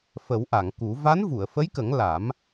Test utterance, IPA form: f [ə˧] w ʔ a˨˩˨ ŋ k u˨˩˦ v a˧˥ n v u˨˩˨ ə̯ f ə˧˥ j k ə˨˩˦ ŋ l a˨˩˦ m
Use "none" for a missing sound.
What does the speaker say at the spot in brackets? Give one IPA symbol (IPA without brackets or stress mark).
ə˨˩˦